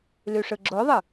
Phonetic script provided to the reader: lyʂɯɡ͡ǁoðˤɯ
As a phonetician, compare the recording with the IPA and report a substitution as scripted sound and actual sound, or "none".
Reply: none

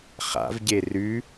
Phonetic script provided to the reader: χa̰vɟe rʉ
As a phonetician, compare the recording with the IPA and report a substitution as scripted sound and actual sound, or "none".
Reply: none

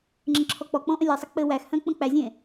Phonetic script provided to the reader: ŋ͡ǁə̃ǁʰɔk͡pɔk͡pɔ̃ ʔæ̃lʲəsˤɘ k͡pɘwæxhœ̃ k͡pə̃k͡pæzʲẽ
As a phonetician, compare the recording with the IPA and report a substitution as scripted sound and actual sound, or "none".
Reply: æ̃ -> ə̃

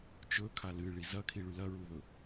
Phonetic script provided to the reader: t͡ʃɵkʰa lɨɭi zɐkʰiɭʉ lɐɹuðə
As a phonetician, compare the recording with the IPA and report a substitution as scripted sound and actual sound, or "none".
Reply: ə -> ɵ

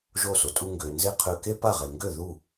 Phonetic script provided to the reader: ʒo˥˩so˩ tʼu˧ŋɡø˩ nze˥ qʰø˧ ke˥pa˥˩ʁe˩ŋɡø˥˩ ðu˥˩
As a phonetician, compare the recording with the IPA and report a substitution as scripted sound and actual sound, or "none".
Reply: none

